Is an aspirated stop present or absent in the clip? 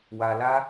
absent